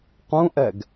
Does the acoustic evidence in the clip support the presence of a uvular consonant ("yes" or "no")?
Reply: yes